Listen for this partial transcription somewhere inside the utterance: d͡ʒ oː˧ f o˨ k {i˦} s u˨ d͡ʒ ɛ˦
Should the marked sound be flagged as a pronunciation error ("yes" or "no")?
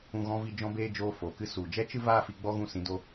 yes